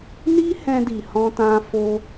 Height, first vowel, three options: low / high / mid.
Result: high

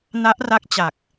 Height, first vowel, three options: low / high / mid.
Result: low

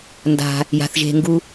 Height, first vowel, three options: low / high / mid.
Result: low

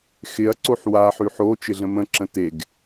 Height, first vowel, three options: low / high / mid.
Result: high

